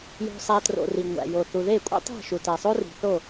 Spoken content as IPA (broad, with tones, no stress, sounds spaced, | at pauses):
j o̤˧ sˤ æ˧ t r o̰˧ r i˨ ŋʷ æ̰˨ j o˨ θ u˨ ð e˦˨ kʷʼ ḭ˦ tˤ i̤˦˨ ʃ u˨ t æ˨ sˤ o˦ r i̤˨ θ o˦˨